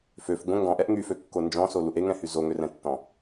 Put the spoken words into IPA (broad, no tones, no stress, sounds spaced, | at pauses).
f ø f ɡʷ ə̃ ŋ ɡ ɔ̃ ʔ ɛ ʔ ŋ y f ø kː o n d͡ʒ ɔ̃ s o l u ʔ e ŋ ɛ̃ h y z o ŋ ø r ɛ̃ tː ɔ̃